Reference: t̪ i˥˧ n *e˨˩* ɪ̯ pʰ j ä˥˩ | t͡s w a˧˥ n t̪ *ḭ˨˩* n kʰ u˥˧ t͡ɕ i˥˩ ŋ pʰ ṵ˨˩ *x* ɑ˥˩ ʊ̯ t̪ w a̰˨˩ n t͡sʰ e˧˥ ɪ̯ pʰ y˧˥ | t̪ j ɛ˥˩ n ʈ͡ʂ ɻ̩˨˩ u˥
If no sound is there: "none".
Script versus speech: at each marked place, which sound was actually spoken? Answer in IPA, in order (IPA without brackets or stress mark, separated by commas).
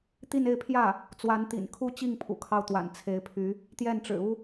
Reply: e˥˧, ḭ˨˩, kʰ